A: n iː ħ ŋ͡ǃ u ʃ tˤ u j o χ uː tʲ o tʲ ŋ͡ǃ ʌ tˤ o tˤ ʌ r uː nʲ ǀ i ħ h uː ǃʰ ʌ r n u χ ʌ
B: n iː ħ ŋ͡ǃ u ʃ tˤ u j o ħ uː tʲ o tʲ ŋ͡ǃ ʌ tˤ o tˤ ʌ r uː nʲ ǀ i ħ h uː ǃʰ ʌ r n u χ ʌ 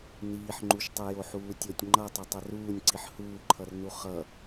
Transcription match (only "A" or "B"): B